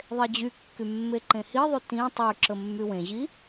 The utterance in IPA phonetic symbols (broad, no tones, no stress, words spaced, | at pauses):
ðˤed͡ʑykːy mːeǃẽhiðˤy tĩ tˤyǁə mːywẽʑi